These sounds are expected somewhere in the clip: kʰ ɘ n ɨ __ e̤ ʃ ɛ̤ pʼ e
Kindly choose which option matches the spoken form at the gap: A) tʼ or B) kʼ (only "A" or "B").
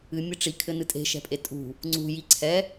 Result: A